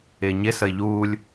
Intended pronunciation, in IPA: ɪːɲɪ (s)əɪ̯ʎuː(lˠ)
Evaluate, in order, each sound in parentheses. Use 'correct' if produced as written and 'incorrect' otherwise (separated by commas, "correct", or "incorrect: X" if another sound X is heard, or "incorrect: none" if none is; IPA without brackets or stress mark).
correct, incorrect: lʲ